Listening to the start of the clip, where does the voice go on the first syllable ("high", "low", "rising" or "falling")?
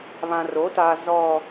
low